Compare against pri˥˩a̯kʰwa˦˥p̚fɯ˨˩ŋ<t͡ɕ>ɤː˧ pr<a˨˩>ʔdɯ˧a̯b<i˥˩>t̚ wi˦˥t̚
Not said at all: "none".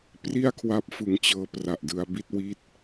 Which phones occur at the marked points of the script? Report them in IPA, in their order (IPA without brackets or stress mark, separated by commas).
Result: t͡ɕ, a˨˩, i˥˩